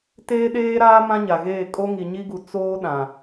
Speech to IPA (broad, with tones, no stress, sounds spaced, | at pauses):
t eː˦ ɗ eː˦ ɾ aː˦ m ã˦ ɲ a˨ ɣ eː˦˨ kʼ o˦ ŋ i˨ ɲ i˦ ɡ u˨ t͡s oː˦ ɗ ã˨